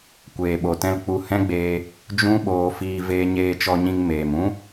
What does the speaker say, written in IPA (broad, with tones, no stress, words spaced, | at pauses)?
kʷeː˨ɓo˨tɛ̃˦l k͡pu˧hɛ̃˦ɡ͡beː˧ | d͡ʒũ˦ɓoː˧fiː˧ veː˧ɲeː˧t͡ʃɔ˧ɲĩ˧ŋ meː˨mũ˦